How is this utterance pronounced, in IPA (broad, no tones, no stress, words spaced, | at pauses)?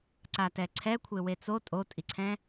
ǀatɛǀʰɛkʷʰe wet͡so tʼotʼiǀʰɛ̃